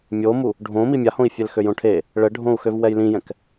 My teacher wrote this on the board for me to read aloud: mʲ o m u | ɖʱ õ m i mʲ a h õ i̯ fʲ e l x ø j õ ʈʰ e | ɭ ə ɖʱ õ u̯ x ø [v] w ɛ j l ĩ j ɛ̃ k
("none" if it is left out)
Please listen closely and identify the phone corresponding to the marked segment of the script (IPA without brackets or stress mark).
v